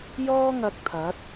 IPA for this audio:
j ɔː˥ ŋ ɐ˧ k̚ t̪ʰ ɐ˨˥ t̚

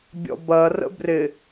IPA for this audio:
bʲ ɔ̰ b ɐ r ə̰ b r ɪ

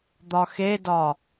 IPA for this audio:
d̪ ɒ x e d ɒ

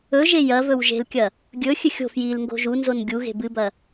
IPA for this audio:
ɵ ʒ e j ɐ v ɵ w ʒ e̤ l kʲ ɐ | ɡʲ ɵ xʲ ɨ xʲ o̤ f j i l ŋ ɡ o̤ ʒ u n z o n ɡʲ u ɣ e̤ b ɨ b ɐ

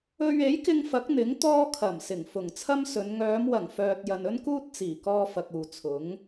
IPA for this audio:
ɵ˧ ɥ e˨˥ j k ɪ˧ ŋ f ɐ˨˥ k̚ n̪ ɪ˨˥ ŋ t̪ ɔː˥ kʰ ɐ˨˩ m s ɪ˨˩ ŋ f ʊ˨˩ ŋ t͡sʰ ɐ˥ m s ɵ˨˧ n ŋ œː˨˧ m w ɐ˨˩ ŋ f œː˨ t̚ j ɐ˨ n ɵ˥ n k uː˥ t̚ t͡s iː˨˩ k ɔː˧ f ɐ˨ k̚ uː˨ t͡sʰ ʊ˨˥ ŋ

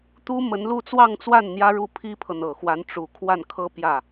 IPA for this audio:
t̪ u˥ m ə˧˥ n l u˥˧ t͡s w ɑ˥˧ ŋ t͡s w a˥˩ n n̪ j ä˥ ɻ u˥˩ pʰ i˥ pʰ ɤ˨ n̪ ɤ˨˩ x w a˧˥ n ʈ͡ʂ u˨˩ kʰ w a˥˩ n kʰ ɤ˥ p j ä˥˩

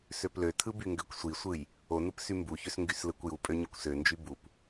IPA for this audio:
s ø p l ø tʰ ɯ b y ŋ ɡ ø kʷ sʷ i sʷ ɯ j | o n ɯ p s y m b u ç ø s ŋ ɡ y s l ɯ kʷ j u pʼ ø ɲ u kʷ s ø n d͡ʒ y b u p

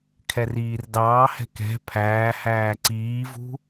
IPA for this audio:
kʰ ɛ r iː r d ɑː h ɛ̤ k ɛ̤ pʰ æː h æː ǀ iː v ṳ

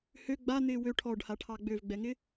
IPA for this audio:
h ø ɡ͡b a n̪ ɪː w ø ʈʰ ɔ ɖ h a ʈʰ ɑ ɡ͡b ø v ɡ͡b ɛ ŋ ɪ

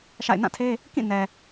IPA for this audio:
ʃ a̰˦˨ ɪ̯ n ã˦˨ tʰ e˦ | k ĩ˦˨ n ɛ˨

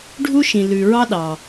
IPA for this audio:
ɖʱ u˥ ʃ ĩ˩ l ʉ˩ ɹ ɑ˥ ɗ ɑ˩

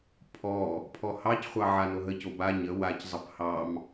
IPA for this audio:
pʰ ɔ | pʰ ɔ h ɑ c χʷ ɑ ʕ a n o ɦ ə c o b a ɲ ə w a c zˤ ə p h ɑ m

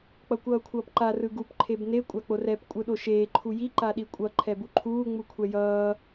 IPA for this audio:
k͡p ʌ kʷ ʌː kʷʰ ʌː p ǃ a r ɯ ɡ u p ǃʰ e b n e kʷʼ a k͡p o r ɛ p kʷʼ ɯ ɗ o ʃ eː ǃʰ u j i ǃ a ɗ i kʷʼ ʌ ǃʰ ɛ b u ǃʰ uː ŋ͡m u kʷʰ ɛ j ʌː

